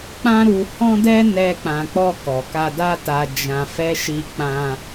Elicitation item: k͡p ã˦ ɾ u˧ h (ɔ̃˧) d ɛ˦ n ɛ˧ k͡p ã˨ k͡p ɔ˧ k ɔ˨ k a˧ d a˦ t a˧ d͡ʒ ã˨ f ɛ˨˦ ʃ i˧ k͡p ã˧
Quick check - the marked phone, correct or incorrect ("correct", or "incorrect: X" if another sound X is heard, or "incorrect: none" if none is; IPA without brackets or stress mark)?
incorrect: ɔ̃˦